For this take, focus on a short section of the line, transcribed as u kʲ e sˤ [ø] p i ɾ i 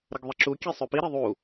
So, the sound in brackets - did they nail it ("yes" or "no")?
yes